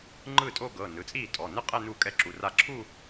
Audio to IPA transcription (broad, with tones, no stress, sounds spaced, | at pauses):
ŋ͡ǃ ɯ˥˩ tʼ o˥˧ ɡ ɤ˩˧˩ n ɯ˩˧˩ t͡sʼ iː˥˩ tʼ ɔ˩˧˩ n ɯ˥˧ qʼ ɛ˥˧ n u˥˩ kʼ ɛ˥˩ ǁ u˩˧˩ r a˧˩ ǁʰ u˥˧